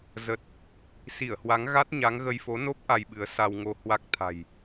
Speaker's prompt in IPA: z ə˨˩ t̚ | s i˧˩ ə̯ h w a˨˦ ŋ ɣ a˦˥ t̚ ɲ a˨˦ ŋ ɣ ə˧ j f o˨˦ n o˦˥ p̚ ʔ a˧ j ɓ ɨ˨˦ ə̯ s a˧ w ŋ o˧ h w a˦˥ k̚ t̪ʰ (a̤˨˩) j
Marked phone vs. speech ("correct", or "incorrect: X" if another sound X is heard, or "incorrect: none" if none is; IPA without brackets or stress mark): correct